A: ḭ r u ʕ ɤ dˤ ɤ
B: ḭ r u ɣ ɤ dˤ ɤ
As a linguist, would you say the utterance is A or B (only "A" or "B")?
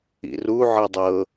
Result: A